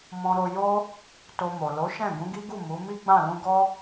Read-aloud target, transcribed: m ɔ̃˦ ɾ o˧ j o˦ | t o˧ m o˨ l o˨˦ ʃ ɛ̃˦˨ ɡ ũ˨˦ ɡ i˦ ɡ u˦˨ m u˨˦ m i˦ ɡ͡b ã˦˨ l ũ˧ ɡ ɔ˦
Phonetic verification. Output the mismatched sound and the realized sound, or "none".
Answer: none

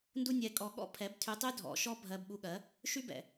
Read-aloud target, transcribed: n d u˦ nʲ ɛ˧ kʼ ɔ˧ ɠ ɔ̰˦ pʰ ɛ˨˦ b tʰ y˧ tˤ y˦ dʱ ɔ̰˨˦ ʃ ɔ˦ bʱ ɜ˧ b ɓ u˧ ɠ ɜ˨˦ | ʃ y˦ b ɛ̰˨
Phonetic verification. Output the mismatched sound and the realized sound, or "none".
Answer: none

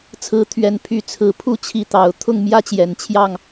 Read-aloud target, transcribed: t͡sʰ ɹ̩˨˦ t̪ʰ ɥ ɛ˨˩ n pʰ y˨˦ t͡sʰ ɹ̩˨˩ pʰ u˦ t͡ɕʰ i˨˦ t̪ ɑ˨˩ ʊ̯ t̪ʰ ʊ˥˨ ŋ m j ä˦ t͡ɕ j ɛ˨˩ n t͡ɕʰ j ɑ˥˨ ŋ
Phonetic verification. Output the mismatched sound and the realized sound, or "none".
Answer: none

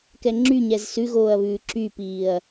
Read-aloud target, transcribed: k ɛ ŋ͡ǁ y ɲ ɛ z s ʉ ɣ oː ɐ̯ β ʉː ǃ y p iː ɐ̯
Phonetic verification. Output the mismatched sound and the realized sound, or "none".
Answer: ǃ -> ǁ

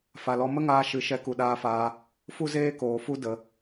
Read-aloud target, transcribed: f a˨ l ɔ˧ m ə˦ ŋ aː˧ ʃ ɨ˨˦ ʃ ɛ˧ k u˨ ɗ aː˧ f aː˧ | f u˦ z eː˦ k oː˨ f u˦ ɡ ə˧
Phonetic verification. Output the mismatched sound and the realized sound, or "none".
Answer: ɡ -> d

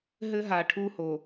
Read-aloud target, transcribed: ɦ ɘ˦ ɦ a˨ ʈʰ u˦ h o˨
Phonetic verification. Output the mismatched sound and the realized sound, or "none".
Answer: none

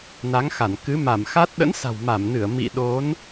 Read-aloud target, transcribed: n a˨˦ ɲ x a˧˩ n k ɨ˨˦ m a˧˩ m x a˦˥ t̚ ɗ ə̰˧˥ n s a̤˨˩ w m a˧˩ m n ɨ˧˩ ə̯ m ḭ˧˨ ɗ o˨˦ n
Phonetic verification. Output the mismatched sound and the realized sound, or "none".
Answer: ɲ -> ŋ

